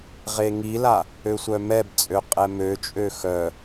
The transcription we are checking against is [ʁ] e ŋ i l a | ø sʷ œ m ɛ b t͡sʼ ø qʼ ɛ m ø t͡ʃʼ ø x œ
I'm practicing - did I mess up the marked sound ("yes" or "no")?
no